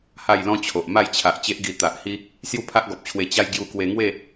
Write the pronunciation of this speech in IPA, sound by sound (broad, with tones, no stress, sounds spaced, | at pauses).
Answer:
h a˥˧ j l ɔ̃˦ t͡ɕʰ o˨ ʔ m a˥˧ j t͡ɕʰ a˨ ʔ t͡ɕ e˦ ʔ ɡ i˧ t̪ a˨ ʔ h i˦ | s j u˥˧ pʰ a˦ ʔ ɡ ɔ˨ p̚ t͡ɕʰ w e˧ t͡ɕ a˧ j ɡ j u˧ k w e˧ ŋ w e˥˧